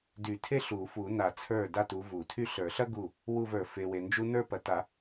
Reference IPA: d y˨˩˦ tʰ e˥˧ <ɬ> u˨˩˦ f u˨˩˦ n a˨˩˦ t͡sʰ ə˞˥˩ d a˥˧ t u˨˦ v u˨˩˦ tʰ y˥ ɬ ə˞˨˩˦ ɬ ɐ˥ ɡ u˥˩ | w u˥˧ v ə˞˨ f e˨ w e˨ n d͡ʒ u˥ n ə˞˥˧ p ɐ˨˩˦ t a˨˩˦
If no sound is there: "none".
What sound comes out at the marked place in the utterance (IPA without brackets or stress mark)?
ɬ